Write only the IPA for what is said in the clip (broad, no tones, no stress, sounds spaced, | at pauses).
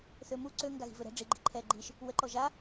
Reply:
θ ø m u ǀ ø ŋ ɡ a ɣ i̤ v ø ɾ ɛ̤ ɖ͡ʐ i ɡ͡ǃ i̤ ǃʰ ɛː ɡ͡ǃ i ʃ | w ə ǃ ɔ ʒ a